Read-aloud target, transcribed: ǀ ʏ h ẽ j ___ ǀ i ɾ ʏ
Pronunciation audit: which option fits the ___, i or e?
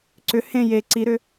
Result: e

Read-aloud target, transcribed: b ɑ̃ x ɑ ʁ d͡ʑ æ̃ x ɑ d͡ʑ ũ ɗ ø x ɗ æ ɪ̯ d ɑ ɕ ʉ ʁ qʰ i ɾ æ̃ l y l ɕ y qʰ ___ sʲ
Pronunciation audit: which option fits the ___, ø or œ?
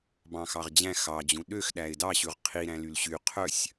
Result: œ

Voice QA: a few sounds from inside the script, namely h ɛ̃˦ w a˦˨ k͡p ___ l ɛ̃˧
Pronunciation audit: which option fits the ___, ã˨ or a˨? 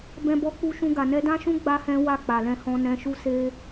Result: a˨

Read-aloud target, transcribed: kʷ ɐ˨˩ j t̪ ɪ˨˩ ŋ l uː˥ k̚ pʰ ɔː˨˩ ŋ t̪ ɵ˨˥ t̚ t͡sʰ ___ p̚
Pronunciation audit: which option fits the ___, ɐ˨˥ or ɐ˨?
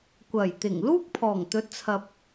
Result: ɐ˨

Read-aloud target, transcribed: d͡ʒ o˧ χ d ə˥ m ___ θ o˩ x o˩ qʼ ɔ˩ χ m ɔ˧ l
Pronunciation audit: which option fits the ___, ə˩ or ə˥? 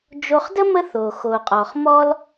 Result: ə˥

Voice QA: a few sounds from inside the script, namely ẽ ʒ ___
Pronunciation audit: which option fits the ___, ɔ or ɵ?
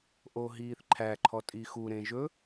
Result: ɵ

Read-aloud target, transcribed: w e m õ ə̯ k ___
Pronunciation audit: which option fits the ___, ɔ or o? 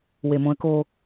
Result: o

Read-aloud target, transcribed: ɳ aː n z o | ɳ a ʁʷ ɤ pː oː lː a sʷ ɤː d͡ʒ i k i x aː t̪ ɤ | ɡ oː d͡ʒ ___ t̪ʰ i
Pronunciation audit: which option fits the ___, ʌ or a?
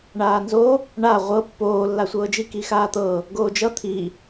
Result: ʌ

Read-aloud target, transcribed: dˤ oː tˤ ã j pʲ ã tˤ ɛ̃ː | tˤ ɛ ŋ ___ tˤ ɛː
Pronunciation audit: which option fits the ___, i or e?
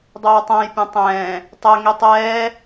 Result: i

